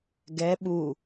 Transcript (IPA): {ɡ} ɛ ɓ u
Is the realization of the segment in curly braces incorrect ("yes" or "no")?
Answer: no